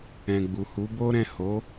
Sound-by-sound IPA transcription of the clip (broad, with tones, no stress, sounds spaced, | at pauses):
ɛ̃˨ ɡ͡b u˨ h u˨˦ b o˦ ɾ ɛ̃˦˨ h o˨˦